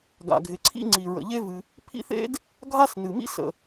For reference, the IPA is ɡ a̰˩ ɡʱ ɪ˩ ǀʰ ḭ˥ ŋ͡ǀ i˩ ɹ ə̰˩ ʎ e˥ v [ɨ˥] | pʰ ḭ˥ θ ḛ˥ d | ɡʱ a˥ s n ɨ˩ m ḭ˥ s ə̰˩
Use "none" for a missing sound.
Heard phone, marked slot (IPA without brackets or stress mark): ɨ˩